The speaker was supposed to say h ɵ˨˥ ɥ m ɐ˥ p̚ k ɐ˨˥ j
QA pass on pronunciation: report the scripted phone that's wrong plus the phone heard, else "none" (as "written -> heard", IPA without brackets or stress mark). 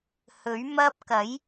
none